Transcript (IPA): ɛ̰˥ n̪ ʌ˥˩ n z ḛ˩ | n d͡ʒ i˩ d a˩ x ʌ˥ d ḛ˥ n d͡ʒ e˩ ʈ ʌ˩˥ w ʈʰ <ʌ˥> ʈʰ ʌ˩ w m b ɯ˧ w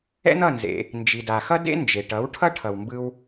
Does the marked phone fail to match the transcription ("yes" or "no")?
no